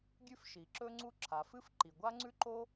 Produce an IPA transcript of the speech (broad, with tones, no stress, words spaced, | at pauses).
ɡʲʉ˥fʃi˩ ǁɵ˥ŋ͡ǀu˥ ǁʰa˩fɨ˥fǃi˩ ɡʷa˥ŋ͡ǀʉ˥ ǃo˥